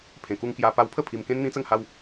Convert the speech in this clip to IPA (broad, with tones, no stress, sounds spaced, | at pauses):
pʰ ẽ˨˩ k u˧ ŋ k j a˧ p a˧ w pʰ ə˥˧ pʰ i˧ m k ẽ˦ n n̪ ĩ˦ t͡s ə˥˧ ŋ h a˦ w